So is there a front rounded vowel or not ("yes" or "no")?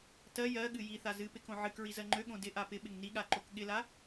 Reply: yes